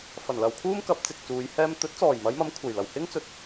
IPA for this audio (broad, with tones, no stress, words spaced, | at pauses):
fɐ˨˩nlɐ˨wkʰuː˥mkɐ˨˥p̚ t͡sɪ˨k̚t͡suː˨˧jhɛː˥m t̪ɵ˨˥t̚t͡sɔː˨˩jmɐ˨˧jmɐ˨˧m kʷʰɐ˨˩jlɐ˨˩w hɪ˥ŋt͡sɵ˨t̚